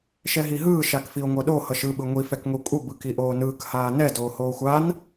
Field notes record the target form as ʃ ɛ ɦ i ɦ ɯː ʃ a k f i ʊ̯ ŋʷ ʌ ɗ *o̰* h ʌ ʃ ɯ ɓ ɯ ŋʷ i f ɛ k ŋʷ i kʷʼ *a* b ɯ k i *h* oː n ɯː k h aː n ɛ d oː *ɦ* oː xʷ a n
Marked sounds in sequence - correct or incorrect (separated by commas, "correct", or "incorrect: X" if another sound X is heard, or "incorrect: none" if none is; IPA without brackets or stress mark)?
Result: incorrect: o, incorrect: ʌ, incorrect: ʔ, incorrect: h